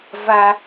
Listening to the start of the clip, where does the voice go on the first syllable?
high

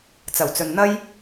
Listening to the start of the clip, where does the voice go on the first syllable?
low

